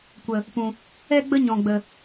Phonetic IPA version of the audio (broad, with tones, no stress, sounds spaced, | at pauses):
kʷ ə˧ | p ũ˧ | ɛ˦ ɡ͡b ə˦ ɲ ɔ̃˧ ɡ͡b ə˧